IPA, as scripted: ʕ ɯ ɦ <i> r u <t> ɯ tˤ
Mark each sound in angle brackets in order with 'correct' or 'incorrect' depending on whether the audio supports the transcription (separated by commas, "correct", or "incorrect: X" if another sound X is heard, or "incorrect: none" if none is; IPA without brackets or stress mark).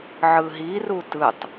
correct, correct